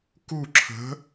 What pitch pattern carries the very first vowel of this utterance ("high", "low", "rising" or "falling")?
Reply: falling